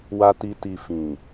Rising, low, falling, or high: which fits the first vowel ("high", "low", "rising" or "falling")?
high